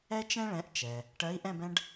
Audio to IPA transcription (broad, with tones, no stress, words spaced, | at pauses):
ɛ˥t͡ʃɛ̃˥ɭɛ̃˨˥ʔ t͡ʃɛ˩ | ʈɜ˨˥i̯ ʔɛ̃˥˧bɛ̃˥ɖ